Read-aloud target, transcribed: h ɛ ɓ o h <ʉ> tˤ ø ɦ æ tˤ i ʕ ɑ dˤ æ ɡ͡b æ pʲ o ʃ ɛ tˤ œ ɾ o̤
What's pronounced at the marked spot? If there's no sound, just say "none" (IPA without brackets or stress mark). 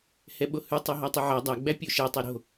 ʉ